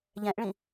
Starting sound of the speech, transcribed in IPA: ʎ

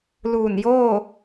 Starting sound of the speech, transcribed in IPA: l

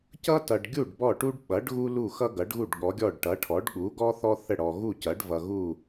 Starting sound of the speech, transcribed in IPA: c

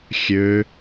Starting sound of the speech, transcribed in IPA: xʲ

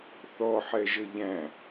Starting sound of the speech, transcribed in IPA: θ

